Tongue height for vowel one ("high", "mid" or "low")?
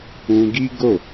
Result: high